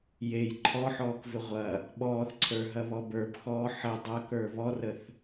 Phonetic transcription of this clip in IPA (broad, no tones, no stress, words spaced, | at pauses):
jej ǃʰɔħɔːkvʏ ʁʷɐ | ɓɔːθǀʰə˞ɦɐβɔ bə˞bxɔː ħə dˤɐkə˞ βɔrəθ